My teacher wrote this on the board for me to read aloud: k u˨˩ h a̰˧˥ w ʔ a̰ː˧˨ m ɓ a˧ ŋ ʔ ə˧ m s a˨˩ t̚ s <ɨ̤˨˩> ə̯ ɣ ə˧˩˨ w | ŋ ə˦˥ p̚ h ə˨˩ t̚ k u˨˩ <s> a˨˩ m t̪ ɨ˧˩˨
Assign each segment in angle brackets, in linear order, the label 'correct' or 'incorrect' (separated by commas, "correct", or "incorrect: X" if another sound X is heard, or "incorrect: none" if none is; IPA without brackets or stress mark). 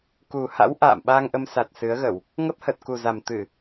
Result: incorrect: ɨ˨˦, incorrect: z